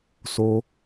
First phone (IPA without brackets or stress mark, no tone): s